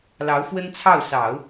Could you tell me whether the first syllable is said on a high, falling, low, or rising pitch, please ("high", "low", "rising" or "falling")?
rising